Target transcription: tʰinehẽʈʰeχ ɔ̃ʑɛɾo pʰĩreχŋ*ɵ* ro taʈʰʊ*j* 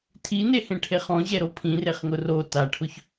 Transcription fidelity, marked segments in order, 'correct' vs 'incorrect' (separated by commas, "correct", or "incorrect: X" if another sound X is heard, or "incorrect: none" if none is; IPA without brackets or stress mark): incorrect: ʊ, incorrect: ç